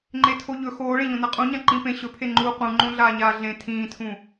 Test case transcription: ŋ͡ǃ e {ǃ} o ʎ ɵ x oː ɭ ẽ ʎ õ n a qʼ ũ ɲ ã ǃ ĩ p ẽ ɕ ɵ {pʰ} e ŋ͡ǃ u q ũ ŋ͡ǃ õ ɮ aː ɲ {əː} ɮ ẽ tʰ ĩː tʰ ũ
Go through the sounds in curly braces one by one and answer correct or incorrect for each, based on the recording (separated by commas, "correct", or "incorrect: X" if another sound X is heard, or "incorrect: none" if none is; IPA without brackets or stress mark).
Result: incorrect: tʰ, correct, incorrect: aː